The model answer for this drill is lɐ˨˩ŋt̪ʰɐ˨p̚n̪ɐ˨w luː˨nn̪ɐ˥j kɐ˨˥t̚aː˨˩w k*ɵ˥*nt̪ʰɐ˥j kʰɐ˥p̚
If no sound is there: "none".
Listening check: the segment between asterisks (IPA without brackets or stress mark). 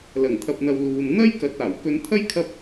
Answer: ɵ˧